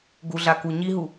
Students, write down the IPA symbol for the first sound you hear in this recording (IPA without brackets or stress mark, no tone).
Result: ɡ